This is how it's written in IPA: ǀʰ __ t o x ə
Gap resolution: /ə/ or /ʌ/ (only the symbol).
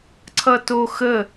ʌ